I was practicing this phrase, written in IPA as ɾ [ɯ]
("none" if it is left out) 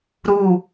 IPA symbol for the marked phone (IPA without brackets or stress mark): u